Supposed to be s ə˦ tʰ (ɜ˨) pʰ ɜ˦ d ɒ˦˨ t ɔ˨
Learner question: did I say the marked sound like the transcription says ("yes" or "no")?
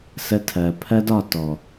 yes